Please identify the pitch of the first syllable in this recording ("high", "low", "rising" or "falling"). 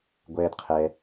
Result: high